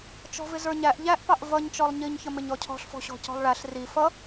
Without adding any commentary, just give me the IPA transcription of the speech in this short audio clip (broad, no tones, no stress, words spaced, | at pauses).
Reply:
t͡ʃɔ̤vɪzə˞ɲæʔ ʎæʔpɑʔ vʌɲ t͡ʃɔlˠɲiɲ çəmɪɲɔcʰɔ̤ɬ fɔ̤ɕɔ̤cɔ̤lˠɭæɬ ri fʌ